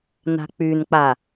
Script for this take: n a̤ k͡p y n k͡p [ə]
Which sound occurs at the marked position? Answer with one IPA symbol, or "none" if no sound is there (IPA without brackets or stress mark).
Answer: a